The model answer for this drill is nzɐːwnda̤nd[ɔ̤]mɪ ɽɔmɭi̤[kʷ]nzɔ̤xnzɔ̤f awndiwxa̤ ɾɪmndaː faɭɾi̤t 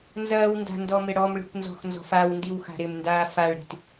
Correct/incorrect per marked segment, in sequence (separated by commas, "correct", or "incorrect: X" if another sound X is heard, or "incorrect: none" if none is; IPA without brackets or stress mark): incorrect: ɔ, correct